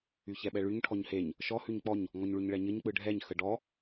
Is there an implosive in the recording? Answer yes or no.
yes